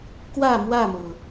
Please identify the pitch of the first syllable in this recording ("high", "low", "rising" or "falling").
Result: falling